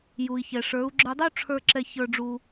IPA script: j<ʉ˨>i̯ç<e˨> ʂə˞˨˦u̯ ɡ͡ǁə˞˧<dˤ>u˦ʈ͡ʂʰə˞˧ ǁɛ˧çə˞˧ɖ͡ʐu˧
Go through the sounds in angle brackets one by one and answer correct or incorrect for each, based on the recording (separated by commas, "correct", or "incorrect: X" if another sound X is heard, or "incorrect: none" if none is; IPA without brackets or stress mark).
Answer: incorrect: u˨, incorrect: ɛ˨, correct